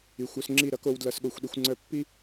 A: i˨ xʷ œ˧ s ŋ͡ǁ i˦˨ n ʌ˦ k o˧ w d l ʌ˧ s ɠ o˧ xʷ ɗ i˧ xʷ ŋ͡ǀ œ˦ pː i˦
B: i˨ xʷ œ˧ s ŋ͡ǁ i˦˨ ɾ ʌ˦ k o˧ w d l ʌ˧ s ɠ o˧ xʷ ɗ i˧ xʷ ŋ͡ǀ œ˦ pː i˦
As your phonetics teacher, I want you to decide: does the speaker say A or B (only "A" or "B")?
B